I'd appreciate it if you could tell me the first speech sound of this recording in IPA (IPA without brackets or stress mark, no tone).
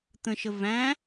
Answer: t̪